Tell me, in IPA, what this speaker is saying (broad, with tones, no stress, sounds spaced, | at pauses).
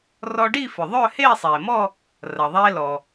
r ɔ˧ ɖ i˥˧ f ʏ˩ ðˤ œ˥˧ h eː˥˧ sˤ eː˩ m ɔ˥˧ | r ɐ˩ ðˤ eː˧ l ɔ˩